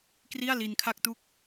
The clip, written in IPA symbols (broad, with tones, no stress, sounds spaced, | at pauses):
k r i˥˩ a̯ l i˧ n kʰ a˥˩ k̚ t u˥˩ k̚